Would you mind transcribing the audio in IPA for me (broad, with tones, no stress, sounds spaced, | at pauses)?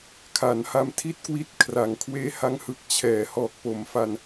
kʰ a˩˦ n h a˧ m tʰ i˥˩ t̚ k w i˦˥ t̚ kʰ r a˨˩ ŋ kʰ w eː˦˥ h a˦˥ ŋ h ɯ˨˩ k̚ t͡ɕʰ ɛː˩˦ h ɔː˨˩ k̚ p o˩˦ m f a˧ n